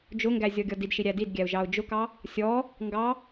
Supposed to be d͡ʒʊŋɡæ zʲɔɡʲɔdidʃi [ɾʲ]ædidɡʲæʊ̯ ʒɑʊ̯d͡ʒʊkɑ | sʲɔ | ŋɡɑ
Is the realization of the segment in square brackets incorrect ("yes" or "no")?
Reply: no